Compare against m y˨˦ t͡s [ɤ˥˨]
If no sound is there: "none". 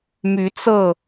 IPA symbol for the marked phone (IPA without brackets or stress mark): ɤ˥˨